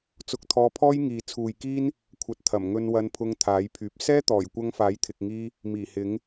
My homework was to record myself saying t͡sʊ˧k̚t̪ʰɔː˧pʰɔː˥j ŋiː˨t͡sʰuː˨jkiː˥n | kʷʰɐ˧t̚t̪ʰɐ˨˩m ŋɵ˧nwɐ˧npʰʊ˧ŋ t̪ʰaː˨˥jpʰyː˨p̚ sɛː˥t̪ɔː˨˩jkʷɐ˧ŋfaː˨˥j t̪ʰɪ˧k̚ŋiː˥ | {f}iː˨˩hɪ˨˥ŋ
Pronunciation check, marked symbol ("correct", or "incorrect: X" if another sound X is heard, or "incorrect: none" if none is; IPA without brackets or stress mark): incorrect: m